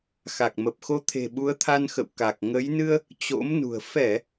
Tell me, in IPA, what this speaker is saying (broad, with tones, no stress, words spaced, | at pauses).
xa˨˩k̚mə˨˩p̚xo˨˦t̪ʰe̤˨˩ ɓu˨˦ə̯t̪ʰa˧nxə̰˧˨w ka˨˩k̚ ŋə˨˦jnɨ˧ə̯ | t͡ɕo̰˧˥mnṳ˨˩ə̯ fɛ˧˩˨